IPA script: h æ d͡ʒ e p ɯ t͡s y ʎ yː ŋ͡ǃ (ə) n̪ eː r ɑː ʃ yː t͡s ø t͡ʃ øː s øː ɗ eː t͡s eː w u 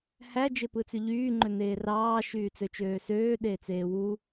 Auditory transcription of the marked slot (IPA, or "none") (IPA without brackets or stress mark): ø